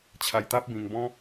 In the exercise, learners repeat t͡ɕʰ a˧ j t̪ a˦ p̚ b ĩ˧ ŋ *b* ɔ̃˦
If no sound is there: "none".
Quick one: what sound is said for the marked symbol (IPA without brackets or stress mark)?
b